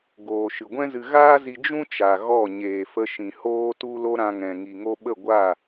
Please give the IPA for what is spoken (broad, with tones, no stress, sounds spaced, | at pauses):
ɡ oː˨ ʃ ɨ˨ ɡʷ ɛ̃˦ z ɨ˧ ɣ aː˦ z i˧ d͡ʒ ũ˦ t͡ʃ a˨ ɣ ɔ˦˨ ɲ eː˨ f ə˧ ʃ ĩ˨ h oː˧ t u˧ l o˧ ɾ ã˧ ŋ ɛ̃˨ ŋ i˨ ŋ o˧ ɓ ə˦˨ ɡʷ a˦˨